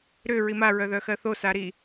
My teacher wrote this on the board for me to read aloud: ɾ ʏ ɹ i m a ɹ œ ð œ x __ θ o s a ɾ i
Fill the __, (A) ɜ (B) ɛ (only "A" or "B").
A